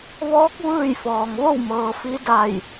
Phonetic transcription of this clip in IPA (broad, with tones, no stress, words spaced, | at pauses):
ʋɔː˧˥k̚ ʋɯː˥˨jfɔː˩ŋ ʋo˥˨wmɤː˩ fi˧˥da˧˩j